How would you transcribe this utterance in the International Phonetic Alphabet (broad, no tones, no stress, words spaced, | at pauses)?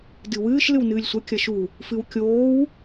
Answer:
dɨwɨːʃ lɨwnɨːlʲsʷɐ kʲɐʃu | fɨwkʲoːw